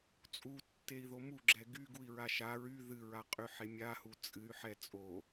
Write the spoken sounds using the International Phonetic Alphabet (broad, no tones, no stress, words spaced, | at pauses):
t͡sʼutːei̯ðo muɡ͡ǁɛ ɡyɡui̯ɹa ʃa ɹy ðɨɹaqʼyħe mʲahu t͡sʼɨy̯ħɛ t͡sʼo